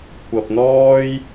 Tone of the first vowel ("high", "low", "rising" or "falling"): low